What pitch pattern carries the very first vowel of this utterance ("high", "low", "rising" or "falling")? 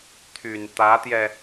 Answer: low